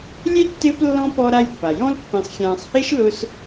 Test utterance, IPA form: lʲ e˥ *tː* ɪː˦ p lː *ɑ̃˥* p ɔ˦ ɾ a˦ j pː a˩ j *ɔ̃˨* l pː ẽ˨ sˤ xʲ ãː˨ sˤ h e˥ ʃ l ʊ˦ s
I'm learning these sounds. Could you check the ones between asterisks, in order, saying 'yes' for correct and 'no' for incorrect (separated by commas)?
yes, no, no